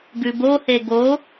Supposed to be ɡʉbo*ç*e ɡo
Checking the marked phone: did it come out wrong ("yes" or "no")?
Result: yes